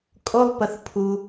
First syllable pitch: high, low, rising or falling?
high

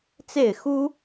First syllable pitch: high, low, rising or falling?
falling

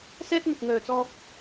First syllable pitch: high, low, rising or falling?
high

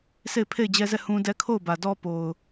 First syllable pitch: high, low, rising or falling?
falling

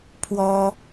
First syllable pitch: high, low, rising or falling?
high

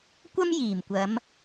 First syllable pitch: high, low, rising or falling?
high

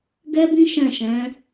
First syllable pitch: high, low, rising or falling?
high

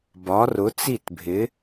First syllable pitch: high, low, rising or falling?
rising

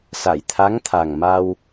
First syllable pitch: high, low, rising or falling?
low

